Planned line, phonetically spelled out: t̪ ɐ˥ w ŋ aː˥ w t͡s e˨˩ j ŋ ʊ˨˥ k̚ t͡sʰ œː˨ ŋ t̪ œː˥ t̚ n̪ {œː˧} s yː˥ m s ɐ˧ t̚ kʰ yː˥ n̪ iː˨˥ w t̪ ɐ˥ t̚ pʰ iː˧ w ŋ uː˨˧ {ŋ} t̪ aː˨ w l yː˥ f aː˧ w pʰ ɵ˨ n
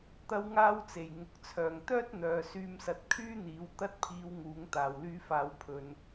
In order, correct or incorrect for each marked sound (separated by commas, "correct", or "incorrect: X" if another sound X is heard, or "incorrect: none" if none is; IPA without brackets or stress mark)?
incorrect: œː˨, correct